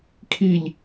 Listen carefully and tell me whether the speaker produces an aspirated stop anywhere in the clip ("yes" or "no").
yes